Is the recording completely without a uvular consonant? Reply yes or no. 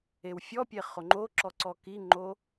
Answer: no